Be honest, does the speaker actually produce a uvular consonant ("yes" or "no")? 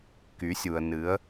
no